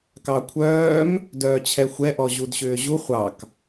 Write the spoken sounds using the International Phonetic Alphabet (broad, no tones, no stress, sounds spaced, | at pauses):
k ɑ kʷʰ œː m | d œː t͡ɕʰ ɛ xʷ ɛ ʔ ɔ ʑ u d ɕ ʏː ʑ u χʷ ɑ k